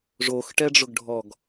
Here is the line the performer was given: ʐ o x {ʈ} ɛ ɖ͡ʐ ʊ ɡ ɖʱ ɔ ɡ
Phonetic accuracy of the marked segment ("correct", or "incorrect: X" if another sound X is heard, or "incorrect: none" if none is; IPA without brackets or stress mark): correct